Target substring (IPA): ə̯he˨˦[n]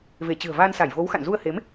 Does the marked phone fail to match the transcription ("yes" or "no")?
yes